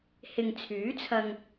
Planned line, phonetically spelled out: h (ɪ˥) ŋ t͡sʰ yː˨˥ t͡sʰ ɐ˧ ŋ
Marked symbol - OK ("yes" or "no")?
no